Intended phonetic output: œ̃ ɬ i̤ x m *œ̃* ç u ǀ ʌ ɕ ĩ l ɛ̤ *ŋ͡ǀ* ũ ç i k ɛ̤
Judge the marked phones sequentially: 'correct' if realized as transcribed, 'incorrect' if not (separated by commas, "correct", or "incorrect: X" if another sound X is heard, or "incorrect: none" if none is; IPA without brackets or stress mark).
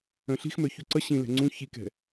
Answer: incorrect: œ, correct